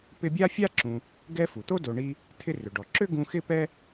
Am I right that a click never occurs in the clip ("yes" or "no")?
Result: no